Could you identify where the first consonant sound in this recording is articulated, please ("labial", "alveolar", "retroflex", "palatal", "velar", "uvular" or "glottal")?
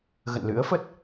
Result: velar